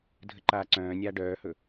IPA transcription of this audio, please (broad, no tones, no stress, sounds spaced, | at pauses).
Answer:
dʱ ə ǃ aː ǀ œ̃ː nʲ aː ɖ œː h ɵ